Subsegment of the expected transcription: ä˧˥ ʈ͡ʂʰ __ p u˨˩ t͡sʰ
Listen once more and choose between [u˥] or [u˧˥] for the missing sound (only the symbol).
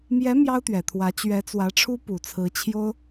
u˥